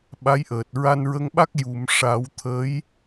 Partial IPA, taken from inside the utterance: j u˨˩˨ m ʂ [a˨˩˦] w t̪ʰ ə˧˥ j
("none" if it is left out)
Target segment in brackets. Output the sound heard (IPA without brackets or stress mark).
a˨˩˦